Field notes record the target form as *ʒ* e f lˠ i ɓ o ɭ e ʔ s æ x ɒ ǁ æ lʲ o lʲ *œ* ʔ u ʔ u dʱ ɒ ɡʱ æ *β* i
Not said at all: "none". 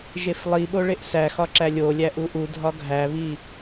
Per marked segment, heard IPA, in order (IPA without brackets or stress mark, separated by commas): ʒ, æ, β